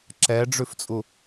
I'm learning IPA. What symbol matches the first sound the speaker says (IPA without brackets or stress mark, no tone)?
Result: ǁ